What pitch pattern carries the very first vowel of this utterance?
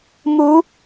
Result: rising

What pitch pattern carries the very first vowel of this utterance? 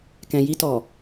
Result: low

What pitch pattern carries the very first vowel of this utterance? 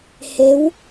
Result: rising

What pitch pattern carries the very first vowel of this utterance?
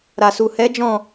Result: low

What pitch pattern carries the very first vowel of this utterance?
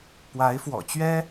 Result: rising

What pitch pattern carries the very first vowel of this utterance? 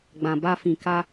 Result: low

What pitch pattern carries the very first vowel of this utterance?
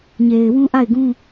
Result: low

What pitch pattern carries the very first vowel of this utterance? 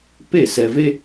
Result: falling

